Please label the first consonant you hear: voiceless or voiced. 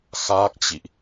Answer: voiceless